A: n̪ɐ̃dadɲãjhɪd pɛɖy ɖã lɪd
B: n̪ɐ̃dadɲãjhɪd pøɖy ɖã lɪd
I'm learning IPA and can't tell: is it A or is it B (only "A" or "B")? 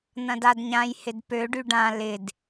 B